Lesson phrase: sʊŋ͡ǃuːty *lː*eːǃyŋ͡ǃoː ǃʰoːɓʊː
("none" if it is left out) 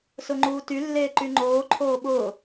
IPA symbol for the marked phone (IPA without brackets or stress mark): lː